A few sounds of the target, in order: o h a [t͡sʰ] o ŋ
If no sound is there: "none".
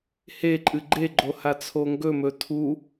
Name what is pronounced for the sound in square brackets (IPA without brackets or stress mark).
t͡sʰ